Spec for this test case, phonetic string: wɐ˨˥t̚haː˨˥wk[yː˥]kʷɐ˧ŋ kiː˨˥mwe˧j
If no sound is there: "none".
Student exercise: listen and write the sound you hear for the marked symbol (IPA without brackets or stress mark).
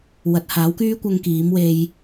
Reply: yː˥